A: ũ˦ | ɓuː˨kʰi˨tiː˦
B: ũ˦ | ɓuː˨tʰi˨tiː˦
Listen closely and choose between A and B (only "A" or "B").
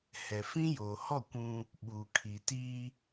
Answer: A